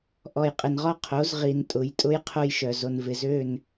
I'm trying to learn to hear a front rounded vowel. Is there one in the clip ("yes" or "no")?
yes